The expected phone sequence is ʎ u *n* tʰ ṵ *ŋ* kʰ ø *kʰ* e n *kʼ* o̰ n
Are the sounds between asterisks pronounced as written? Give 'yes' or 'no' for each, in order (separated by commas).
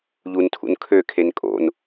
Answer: yes, no, yes, yes